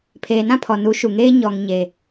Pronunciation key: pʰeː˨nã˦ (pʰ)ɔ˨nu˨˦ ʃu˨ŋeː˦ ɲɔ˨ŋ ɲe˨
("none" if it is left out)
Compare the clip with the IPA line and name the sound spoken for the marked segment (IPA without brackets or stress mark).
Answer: pʰ